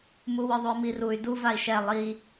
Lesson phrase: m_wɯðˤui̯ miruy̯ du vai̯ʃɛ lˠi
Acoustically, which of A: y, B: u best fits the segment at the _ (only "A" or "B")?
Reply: B